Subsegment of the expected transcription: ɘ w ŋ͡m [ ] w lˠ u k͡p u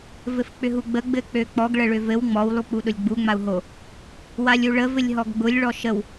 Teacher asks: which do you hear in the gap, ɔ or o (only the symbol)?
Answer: ɔ